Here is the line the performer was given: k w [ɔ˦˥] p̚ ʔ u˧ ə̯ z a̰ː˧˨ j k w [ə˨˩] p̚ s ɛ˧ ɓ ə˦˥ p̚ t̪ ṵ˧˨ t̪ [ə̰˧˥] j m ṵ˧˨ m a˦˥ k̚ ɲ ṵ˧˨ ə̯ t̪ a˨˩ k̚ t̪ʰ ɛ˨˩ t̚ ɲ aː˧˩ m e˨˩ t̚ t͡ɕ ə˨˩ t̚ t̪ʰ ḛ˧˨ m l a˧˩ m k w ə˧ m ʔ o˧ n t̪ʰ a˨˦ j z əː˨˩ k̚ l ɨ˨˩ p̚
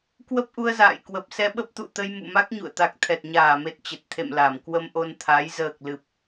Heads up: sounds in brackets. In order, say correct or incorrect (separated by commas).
incorrect, correct, incorrect